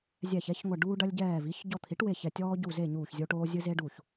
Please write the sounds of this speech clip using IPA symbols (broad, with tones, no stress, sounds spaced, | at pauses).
zʲ ɛ˧˩ ç ɛ˩˥ ç ŋʷ ɐ˧˩ ɖ uː˧ ɖ ɐ˧ lʲ ɟ ɛː˧˩ v i˩˥ ç ɟ ɔ˧˩ t̪ʰ i˩˥ ʈ w e˧˩ ç ɛ˧˩ tʲ ɔː˧ ɟ u˧˩ z e˧˩ ɲ uː˧˩ ç zʲ o˧ ʈ oː˧ zʲ ɨ˧ z e˧ ɖ u˧˩ ç